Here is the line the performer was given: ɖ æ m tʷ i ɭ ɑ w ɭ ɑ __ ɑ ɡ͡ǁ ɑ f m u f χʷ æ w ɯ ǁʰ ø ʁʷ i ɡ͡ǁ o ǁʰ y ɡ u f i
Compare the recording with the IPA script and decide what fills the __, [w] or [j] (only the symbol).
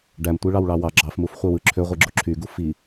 w